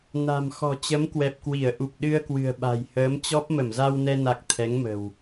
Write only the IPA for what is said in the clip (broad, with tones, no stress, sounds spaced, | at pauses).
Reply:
n a̤˨˩ m x ɔ̤˨˩ t͡ɕ ə˨˦ m k w ɛ˨˩ p̚ k w i˧˩ ə̯ ʔ u˨˩ p̚ ɗ ɨ˧ ə̯ k w ɨ̤˨˩ ə̯ ɓ a̤˨˩ j h əː˨˦ m t͡ɕ ɔ˦˥ p̚ m ə˧˩ m z a˧ w n ɛ˧ n a˨˩ k̚ t̪ʰ ɛ˨˦ ŋ m ə̤˨˩ w